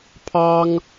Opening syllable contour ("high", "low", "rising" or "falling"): high